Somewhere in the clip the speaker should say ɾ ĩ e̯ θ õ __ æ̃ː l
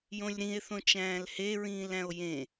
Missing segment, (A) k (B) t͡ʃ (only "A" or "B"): B